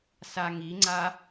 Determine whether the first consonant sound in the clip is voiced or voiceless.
voiceless